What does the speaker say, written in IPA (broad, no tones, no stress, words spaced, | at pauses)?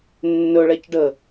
nːɵɭɛc ɖə